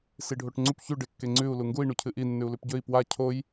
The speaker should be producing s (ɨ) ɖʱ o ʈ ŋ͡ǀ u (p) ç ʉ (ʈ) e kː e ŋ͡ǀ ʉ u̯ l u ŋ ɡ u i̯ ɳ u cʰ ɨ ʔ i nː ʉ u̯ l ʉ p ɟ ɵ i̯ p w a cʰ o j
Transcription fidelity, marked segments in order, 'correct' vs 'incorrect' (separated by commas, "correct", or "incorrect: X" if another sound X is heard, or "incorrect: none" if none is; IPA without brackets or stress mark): incorrect: i, correct, incorrect: ɖ